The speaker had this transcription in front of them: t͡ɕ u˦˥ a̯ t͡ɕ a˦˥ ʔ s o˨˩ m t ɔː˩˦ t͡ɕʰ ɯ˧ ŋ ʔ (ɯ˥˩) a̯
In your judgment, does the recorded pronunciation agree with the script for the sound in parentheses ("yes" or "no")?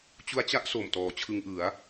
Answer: no